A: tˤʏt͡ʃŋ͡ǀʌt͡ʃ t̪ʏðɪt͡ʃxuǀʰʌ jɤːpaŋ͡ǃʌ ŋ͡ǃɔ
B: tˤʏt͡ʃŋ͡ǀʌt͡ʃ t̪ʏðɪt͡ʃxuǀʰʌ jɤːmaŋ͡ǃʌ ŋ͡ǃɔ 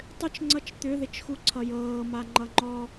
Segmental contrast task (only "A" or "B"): B